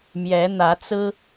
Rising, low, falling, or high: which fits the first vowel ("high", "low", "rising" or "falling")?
rising